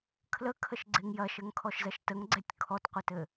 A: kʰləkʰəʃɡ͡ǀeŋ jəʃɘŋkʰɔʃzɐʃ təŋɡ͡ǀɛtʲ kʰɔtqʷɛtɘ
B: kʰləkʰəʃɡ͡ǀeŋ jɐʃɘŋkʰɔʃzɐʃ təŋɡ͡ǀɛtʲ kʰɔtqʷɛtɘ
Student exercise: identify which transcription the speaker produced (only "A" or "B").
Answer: B